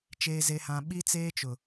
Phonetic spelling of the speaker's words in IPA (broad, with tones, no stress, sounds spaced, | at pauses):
t͡ʃ eː˦ z e˦ h ã˦ ɓ i˦ t͡s eː˦ t͡ʃ ʊ˨